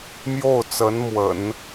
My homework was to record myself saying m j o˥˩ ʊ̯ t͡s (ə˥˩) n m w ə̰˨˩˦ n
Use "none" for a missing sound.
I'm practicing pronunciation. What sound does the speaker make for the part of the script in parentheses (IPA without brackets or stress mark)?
ə˧˥